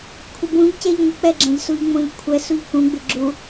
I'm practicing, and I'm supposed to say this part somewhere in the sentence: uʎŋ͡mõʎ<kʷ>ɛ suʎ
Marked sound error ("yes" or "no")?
yes